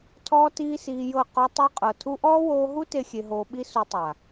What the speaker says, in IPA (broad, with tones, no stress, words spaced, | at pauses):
tʰɔː˦tiː˦siː˧jɤ˦˨ qɔ˧tˤu˧qʼɤ˨ tʰu˧ʔɔː˦woː˧ɦu˦ te˦xʲe˧ɦoː˧ ɓi˦su˧tˤa˨